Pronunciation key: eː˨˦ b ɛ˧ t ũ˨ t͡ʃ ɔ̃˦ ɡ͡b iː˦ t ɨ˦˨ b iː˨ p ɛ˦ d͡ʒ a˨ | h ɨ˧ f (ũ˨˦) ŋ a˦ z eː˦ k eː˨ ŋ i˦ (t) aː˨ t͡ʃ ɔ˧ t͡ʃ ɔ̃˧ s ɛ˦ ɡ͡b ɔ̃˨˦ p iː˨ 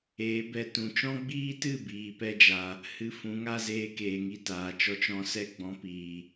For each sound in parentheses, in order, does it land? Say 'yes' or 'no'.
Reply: yes, yes

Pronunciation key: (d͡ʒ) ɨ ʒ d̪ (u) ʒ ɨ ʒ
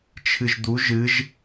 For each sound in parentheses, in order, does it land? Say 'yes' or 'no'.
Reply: no, yes

